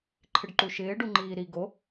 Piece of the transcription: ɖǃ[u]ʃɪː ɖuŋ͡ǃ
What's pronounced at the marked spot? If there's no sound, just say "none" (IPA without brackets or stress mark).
u